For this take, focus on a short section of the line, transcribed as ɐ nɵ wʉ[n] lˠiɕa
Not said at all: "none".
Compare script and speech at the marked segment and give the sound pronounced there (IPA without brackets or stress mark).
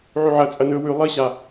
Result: none